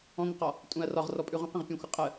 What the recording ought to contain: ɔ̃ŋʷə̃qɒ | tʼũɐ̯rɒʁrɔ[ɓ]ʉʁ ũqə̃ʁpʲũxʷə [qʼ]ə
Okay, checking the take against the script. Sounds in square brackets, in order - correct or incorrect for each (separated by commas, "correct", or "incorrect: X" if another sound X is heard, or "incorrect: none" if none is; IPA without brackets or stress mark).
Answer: incorrect: pʼ, correct